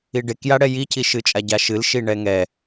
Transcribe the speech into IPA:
iɖekjaɽɛ jicʰiʃɨt͡ʃʼa ɟaʃɨlʃi ɳɛŋɛ

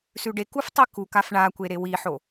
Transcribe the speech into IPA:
sʉɖekuf tˤikukaf ɳakʷe ɾewiħo

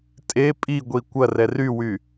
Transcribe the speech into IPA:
tʼe pʼiɡʷi kʷɐrɛ rywy

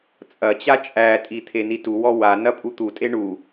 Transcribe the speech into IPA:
t͡sʼɐt͡ɕa t͡ʃʼætʼi t̪ʰenituwɔ wa nɐpʼut̪utʼe ɳu

